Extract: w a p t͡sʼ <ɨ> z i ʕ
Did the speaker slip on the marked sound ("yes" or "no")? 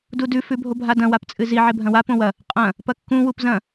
no